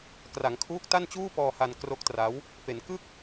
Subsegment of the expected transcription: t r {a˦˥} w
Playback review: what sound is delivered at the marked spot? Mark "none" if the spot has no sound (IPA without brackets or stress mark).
a˦˥